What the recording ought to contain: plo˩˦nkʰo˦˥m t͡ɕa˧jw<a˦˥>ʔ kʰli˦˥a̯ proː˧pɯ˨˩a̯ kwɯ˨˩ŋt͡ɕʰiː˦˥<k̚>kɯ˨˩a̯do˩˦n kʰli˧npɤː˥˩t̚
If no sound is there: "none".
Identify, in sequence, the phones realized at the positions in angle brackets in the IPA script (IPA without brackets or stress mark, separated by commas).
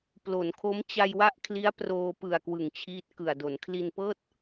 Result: a˦˥, t̚